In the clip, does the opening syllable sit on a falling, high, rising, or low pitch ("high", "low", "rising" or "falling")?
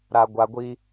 low